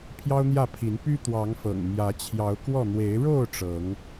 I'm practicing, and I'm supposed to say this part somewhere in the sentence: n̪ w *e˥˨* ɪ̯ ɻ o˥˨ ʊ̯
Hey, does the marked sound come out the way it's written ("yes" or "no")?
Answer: no